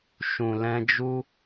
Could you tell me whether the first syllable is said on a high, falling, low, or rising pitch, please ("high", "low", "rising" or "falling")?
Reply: low